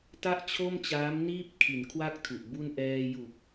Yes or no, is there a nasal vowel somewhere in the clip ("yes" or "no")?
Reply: no